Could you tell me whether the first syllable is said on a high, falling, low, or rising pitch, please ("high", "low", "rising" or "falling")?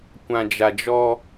low